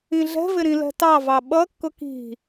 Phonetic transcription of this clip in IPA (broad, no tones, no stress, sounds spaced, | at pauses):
ĩ ɮ ɛ̤ v ɪ ɾ ĩ l ɛ̤ t ɑ v ɑ ɓ ʌ kː ʊ k i̤